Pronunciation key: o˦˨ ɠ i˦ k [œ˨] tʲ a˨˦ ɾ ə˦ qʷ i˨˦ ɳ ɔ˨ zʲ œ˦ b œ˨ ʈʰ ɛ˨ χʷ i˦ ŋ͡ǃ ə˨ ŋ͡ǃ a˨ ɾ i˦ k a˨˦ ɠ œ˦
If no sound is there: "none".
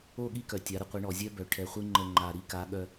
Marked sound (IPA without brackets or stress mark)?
œ˨